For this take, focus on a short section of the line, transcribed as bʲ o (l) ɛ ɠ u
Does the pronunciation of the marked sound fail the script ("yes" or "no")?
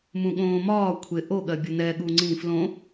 yes